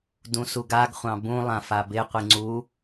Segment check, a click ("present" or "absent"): present